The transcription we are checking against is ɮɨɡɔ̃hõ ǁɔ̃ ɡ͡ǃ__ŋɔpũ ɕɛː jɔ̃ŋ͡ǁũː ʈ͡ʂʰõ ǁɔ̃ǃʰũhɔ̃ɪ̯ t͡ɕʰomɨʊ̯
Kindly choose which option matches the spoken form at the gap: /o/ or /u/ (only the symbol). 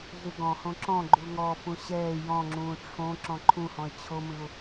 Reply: u